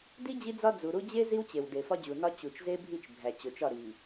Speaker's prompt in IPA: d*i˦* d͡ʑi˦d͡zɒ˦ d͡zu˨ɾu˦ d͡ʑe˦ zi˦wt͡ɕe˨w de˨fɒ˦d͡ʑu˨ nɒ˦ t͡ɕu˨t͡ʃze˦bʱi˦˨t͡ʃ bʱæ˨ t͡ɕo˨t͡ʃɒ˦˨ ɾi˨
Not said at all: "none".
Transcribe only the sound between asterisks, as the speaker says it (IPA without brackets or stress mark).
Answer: i˦